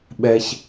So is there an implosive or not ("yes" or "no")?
yes